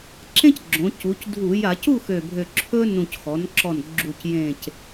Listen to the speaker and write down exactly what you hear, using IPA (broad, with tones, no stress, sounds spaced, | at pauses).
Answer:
ǁ ẽ˦ c ɡ͡ǁ õ˩˧ c u˩˧ c dʱ u˧˩˧ j a˧˩˧ c u˥˨ x ø˨˩ bʱ ø˨˩ ǁʰ ɵ˦ n ũ˨˩ c x ɔ˩˧ n ǁ ɔ˨˩ n ɡ͡ǁ u˨˩ c j ẽ˨˩ c